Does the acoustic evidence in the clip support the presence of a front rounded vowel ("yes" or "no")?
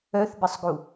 yes